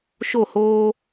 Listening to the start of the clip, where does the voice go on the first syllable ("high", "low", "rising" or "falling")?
falling